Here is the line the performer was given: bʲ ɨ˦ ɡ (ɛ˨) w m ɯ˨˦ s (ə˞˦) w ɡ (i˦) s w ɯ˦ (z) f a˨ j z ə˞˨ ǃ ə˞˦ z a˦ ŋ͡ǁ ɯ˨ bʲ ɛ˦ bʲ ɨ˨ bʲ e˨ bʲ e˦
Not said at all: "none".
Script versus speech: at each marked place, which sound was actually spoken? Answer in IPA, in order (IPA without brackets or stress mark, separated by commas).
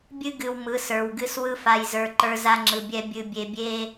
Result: ɨ˨, ə˞˨, ɨ˦, none